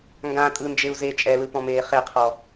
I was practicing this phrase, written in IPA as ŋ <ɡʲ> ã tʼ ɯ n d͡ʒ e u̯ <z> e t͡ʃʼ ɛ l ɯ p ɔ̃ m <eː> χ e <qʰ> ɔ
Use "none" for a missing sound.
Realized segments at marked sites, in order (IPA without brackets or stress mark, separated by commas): ɡ, z, eː, qʰ